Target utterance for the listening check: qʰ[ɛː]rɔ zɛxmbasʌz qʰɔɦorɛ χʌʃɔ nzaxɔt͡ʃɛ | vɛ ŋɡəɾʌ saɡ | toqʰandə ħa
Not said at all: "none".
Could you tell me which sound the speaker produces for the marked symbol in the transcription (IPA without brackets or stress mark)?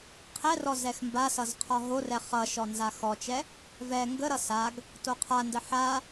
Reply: ɛ